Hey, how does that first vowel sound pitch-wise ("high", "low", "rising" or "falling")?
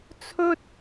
high